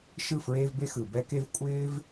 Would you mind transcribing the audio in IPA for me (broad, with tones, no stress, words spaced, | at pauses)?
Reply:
ʃɯ˥˨ fɹeː˥vbe˥ xɯ˨ bɛ˥ke˥v kʷʼɪː˥v